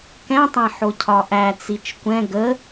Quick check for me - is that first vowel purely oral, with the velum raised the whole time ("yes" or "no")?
no